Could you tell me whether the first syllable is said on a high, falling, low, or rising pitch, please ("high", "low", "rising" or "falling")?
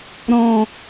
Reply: low